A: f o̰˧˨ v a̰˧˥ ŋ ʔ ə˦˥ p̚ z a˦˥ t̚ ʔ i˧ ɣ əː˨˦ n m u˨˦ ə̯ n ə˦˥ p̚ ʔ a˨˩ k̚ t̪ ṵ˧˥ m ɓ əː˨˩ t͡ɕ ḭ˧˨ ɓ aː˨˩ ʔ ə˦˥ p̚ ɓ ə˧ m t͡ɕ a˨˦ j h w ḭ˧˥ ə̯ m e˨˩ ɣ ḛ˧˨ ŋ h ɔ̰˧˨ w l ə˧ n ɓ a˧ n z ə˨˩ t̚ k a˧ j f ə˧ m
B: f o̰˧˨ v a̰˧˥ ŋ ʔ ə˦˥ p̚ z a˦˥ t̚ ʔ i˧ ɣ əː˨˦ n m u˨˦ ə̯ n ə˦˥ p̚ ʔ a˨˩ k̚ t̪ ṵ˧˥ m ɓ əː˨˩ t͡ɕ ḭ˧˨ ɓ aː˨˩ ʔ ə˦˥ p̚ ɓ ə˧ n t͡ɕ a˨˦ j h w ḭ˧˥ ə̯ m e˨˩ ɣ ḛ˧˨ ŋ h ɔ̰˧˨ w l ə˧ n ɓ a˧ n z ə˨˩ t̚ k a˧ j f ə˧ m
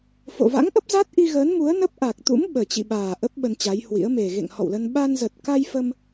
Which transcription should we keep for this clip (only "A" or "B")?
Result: B